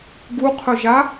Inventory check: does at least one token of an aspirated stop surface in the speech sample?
yes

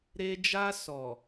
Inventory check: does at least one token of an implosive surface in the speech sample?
no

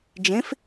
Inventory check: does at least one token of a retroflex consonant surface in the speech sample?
no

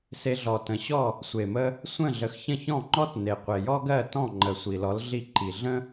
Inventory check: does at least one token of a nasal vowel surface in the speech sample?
yes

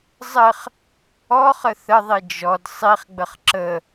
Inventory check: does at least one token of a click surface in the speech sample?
yes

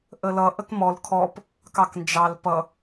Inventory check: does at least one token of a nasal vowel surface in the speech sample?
no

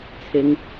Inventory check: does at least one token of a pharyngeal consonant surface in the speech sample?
no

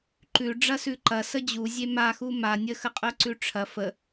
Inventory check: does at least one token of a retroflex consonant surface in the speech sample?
yes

